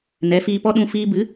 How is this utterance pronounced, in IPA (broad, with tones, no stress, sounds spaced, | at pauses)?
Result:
n ɛ˨˦ f iː˧ p ɔ˦ ɗ ũ˧ f iː˧ b ɨ˨˦